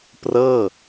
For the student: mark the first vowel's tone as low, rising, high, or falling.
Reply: falling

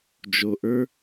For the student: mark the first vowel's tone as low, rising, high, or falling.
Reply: low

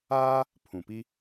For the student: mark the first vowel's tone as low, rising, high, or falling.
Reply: high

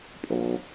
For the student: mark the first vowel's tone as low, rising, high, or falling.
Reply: low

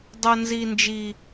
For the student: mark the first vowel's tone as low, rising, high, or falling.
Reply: high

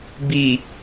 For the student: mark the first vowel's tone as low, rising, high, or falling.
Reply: low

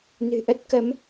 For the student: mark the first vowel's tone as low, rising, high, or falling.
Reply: low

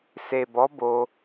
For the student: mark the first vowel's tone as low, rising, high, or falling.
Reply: low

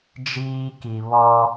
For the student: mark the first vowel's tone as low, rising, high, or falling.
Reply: high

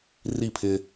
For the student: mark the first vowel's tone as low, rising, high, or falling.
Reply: falling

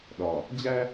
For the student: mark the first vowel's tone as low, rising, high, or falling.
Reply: low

